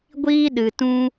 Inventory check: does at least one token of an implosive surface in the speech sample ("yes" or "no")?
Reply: yes